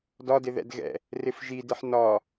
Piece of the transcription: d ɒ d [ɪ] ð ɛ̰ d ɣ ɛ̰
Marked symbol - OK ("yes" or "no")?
yes